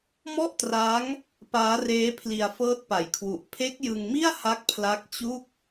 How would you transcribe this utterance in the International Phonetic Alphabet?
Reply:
m ɔ˥˩ ʔ t r a˦˥ ŋ | p aː˦˥ r eː˦˥ pʰ l i˧ a̯ f ɤː˦˥ t̚ p a˨˩ j kʰ w u˨˩ ʔ pʰ e˦˥ k̚ j ɯ˧ ŋ m i˥˩ a̯ h a˦˥ k̚ pʰ l a˦˥ k̚ t͡ɕ u˥˩ k̚

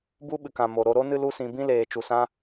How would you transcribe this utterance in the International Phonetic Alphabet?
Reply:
b u˦ ɓ ɨ˨ k ã˨ m o˨ ɾ o˧ ɾ o˦ n ɨ˦ l u˦ s ĩ˧ b ĩ˦ l eː˨ t͡ʃ u˨ s ã˦

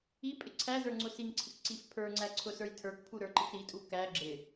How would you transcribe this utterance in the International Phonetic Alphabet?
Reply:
i pʼ ɪ ǀʰ æ z ə˞ ŋ͡ǀ ʊ s i ŋ ǀʰ ɪ k ǀ i f pʰ ə˞ ŋ͡ǀ æ ǀʰ ʊ s ə˞ j tʰ ə˞ k pʰ u ɾ ə˞ ǃ ɪ k ɾ i tʼ u k æ ɡ͡ǁ ɪ

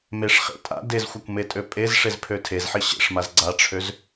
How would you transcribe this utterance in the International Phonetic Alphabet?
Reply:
m e ʂ χ ḛ tʼ a̰ d e z xʷ a kʷ m e tʼ ø pʼ e z ʂ e z pʰ ø tʰ e z ħ i ɕ ḛ ʂ m a z ɡ͡ǀ a ʈ͡ʂʰ ø z

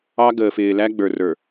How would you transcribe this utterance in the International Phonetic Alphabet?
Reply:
ɑ˦ ɡ əː˨ f ɪː˨ l æ˦ ɡ͡b ə˞˨ r ə˞˨

